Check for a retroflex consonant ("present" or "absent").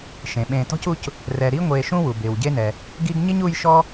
absent